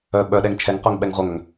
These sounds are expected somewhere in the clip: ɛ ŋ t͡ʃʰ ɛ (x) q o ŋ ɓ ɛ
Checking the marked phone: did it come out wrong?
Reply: yes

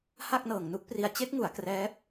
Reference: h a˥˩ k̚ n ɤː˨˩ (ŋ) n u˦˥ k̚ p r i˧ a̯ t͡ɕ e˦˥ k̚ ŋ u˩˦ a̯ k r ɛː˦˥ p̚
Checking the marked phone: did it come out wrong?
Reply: no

